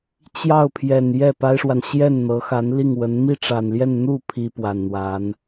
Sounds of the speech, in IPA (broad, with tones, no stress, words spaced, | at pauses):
t͡ɕjɑ˥˩ʊ̯pʰjɛ˨˩n jɛ˥˩pa˥ɪ̯ʂwa˨n ɕjɛ˥˩nn̪ɤ˧˥xa˧˥n li˥˩ŋwə˧˥n mi˥˩ʈ͡ʂa˨˩nljɛ˥˧n n̪u˥˩ pʰi˥pwa˨˩nn̪wa˧˥n